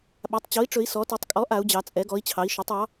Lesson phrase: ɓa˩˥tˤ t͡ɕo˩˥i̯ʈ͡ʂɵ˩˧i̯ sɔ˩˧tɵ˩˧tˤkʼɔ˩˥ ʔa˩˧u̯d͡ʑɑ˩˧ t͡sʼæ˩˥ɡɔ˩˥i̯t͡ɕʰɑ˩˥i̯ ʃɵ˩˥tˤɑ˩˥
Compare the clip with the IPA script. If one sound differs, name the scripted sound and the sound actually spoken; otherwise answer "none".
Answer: æ˩˥ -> ɛ˩˥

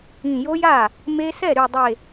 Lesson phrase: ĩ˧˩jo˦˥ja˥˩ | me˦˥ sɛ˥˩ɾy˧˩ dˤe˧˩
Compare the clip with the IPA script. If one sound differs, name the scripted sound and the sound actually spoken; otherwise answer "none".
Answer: none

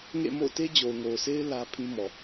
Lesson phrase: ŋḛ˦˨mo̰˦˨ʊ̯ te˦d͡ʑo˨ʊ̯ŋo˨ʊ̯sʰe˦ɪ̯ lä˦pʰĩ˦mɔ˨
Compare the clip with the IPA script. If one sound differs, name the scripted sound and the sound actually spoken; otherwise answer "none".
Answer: none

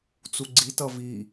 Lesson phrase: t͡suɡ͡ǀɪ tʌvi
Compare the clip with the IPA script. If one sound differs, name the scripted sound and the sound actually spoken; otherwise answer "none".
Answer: ɪ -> i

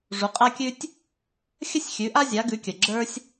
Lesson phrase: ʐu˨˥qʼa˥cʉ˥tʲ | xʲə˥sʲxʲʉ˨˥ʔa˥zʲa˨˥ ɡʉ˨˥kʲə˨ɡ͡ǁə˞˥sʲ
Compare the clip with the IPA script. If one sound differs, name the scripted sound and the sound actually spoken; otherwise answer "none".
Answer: c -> kʲ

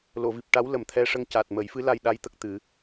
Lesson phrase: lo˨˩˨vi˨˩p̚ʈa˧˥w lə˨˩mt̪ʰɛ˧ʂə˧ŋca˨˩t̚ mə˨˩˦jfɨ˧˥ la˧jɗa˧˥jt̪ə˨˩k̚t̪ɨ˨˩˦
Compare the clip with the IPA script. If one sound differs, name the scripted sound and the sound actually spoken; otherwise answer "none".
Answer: none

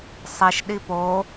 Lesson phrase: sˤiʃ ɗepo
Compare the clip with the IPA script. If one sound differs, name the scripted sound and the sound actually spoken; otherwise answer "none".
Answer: e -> i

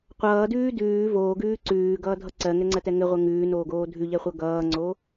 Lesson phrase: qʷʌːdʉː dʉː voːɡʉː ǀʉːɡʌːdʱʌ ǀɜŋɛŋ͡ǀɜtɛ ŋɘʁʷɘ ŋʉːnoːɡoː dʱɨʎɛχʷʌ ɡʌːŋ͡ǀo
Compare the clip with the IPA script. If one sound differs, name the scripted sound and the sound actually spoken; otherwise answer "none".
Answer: ɨ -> ʉ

